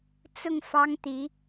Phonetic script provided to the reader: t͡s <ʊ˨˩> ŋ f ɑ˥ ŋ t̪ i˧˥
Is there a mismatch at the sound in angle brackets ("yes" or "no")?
yes